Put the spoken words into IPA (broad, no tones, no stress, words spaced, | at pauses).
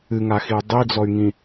ɨŋaxiu̯ dˤid͡zɔy̯ŋĩ